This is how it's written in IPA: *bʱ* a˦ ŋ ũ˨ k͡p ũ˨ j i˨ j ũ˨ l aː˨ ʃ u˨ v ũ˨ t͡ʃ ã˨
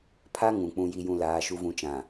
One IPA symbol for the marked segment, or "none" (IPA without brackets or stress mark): pʰ